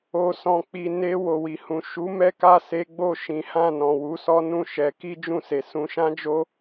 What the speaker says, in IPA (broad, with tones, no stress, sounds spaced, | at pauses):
o˨ s ɔ̃˨ k͡p i˨ n e˧ w o˨ w i˨ h ũ˨ ʃ u˨˦ m ɛ˦ k a˦˨ s e˨˦ ɡ͡b o˦˨ ʃ ĩ˨˦ h ã˦˨ n ɔ̃˨ w u˨˦ s ɔ˦ n ũ˦˨ ʃ ɛ˨˦ k i˦ d͡ʒ ũ˦˨ s e˨ s ũ˨˦ ʃ ã˦ d͡ʒ o˦